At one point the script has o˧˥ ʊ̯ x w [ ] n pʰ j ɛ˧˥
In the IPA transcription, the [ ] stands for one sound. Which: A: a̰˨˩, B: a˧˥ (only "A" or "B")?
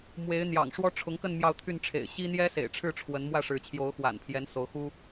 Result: A